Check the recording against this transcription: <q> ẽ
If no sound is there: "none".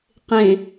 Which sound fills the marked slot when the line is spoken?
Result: q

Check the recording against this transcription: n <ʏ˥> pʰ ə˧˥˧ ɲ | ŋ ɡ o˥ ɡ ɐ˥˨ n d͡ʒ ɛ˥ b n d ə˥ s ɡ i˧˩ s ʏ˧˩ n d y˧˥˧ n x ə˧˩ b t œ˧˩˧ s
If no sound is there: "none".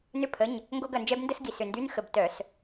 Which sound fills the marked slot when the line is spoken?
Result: ʏ˥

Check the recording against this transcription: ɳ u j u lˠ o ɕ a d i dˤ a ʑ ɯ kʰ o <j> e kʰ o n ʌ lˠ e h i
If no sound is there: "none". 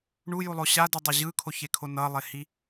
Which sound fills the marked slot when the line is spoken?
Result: ç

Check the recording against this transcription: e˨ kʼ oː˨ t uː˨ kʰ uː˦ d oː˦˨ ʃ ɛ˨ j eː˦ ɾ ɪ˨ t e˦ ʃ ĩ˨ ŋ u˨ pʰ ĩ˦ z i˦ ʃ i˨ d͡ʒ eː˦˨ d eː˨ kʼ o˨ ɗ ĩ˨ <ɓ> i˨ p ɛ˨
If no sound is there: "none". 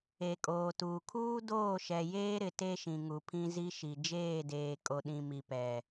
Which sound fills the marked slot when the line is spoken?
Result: m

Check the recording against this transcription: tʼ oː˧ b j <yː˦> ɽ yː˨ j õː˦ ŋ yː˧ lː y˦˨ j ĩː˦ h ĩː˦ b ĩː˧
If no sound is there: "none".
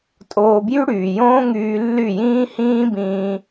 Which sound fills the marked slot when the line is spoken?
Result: y˦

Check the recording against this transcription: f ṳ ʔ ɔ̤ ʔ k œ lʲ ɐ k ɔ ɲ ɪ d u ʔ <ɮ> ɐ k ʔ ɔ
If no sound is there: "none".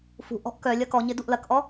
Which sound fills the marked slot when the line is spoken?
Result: l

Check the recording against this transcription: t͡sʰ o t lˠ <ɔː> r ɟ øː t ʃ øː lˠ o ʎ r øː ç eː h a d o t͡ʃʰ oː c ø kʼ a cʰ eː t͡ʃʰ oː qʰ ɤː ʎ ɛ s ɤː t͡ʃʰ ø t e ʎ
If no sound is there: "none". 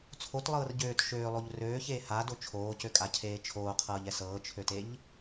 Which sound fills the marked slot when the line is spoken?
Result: ɤː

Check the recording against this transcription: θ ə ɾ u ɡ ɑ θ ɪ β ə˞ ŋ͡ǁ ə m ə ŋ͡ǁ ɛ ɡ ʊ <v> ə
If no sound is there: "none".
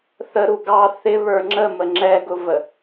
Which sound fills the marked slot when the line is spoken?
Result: v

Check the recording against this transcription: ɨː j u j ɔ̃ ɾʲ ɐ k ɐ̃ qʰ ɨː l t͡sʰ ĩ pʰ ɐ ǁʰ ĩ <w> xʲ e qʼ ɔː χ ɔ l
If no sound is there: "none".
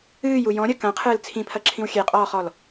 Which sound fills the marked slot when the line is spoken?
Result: w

